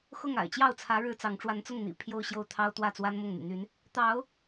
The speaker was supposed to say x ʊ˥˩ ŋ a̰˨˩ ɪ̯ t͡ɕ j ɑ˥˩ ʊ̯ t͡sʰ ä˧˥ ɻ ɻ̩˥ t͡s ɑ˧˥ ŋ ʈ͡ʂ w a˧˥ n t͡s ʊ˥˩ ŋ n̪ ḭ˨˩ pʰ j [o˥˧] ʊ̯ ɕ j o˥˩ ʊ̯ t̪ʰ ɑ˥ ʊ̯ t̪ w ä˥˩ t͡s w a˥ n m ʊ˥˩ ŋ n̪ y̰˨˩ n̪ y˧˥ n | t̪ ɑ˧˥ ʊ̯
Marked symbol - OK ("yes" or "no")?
yes